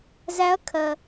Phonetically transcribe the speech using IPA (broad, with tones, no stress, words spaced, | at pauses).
zæ˧˥ɐ̯kʰɜ˩